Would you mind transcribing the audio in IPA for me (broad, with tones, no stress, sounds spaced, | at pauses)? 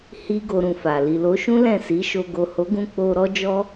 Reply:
h i˦ ɡ o˧ ɾ ũ˧ f a˨ l i˨ l o˨˦ ʃ ũ˦ l ɛ̃˦˨ s i˨˦ ʃ o˧ ɡ o˨ h o˨˦ ɡ ũ˧ k͡p o˧ ɾ ɔ˦ d͡ʒ ɔ˦